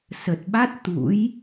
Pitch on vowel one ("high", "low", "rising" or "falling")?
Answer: low